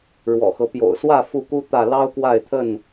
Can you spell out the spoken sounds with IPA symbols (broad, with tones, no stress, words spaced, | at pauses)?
ɻwɔ̰˨˩xɤ˦ pjo̰˨˩ʊ̯swä˥˨ fu˥˨ku˦ t̪ä˥˨ lɑ˦ʊ̯kwa˥˨ɪ̯t̪ʰə˥˨n